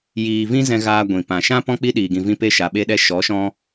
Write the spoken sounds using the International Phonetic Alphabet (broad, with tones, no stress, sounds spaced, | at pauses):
j iː˨ v ĩ˧ z ɛ̃˧ ɣ aː˧ ɡʷ ĩ˨ p ã˨ ʃ ã˦ p ɔ̃˦ k͡p i˦ ɗ iː˧ ɡ ĩ˧ v ĩ˦ p e˦ ʃ a˧ ɓ e˦ ɗ ɛ˦ ʃ ɔ˨˦ ʃ ɔ̃˧